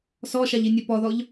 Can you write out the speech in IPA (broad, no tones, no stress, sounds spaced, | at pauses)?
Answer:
s ɔ ʃ a ʎ i nʲ ɛ p ɔ ð ɔ ʎ